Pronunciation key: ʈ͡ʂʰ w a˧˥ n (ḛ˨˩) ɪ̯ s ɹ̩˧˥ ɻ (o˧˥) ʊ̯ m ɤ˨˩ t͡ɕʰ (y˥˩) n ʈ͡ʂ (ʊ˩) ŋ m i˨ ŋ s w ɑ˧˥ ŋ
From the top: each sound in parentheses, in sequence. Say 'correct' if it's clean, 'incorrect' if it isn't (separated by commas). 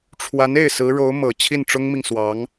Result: incorrect, correct, incorrect, incorrect